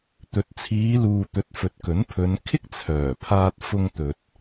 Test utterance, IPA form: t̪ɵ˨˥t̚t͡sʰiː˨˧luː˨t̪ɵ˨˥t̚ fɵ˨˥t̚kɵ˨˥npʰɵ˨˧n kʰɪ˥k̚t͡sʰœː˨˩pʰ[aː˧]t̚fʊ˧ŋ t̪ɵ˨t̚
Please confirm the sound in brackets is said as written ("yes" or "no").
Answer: yes